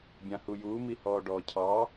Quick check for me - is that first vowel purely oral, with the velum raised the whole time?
no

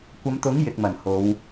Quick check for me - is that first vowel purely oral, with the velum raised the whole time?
yes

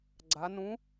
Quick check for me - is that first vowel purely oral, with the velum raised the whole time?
yes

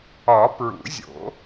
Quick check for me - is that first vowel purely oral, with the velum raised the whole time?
yes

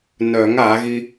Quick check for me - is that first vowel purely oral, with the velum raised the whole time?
yes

